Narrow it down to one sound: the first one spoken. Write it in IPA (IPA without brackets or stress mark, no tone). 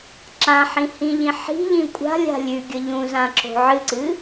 ǁ